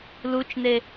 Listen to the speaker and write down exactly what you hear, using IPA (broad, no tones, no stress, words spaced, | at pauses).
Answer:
lut͡ʃne